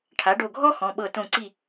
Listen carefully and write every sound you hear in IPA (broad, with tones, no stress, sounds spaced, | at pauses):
ʈʰ a˩˥ ɖ o˧˩ ɡʱ ɔ˥ x ɔ̃˩˧˩ ɓ ɤ˧˩ t õ˧˩ ǀ i˧˩